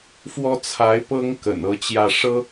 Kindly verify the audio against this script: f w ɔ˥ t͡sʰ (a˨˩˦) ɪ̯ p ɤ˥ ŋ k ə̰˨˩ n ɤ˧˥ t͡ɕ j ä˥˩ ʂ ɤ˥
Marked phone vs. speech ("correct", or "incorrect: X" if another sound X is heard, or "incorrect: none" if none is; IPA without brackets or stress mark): incorrect: a˧˥